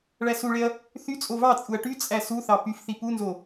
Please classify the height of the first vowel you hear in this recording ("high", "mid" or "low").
low